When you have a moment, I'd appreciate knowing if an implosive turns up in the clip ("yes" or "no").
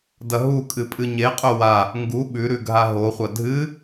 yes